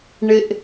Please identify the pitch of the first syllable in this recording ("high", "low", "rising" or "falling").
low